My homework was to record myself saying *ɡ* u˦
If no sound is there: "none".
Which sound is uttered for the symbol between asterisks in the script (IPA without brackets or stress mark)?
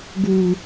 ɡ